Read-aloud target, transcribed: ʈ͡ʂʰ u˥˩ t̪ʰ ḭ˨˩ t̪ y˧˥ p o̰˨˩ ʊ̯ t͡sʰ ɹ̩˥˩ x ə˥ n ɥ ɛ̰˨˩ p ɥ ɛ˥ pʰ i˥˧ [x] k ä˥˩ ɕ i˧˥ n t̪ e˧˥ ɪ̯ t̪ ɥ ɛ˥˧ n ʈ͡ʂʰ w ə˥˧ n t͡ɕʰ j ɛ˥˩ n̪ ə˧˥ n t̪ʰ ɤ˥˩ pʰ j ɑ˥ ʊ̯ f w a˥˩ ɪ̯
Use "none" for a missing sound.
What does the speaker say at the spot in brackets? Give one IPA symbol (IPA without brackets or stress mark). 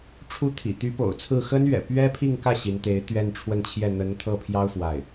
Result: ŋ